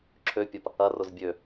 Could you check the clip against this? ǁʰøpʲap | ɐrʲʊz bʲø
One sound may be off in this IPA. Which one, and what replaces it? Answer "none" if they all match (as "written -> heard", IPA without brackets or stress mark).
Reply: rʲ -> r